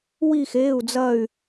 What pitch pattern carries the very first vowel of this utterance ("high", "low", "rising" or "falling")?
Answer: falling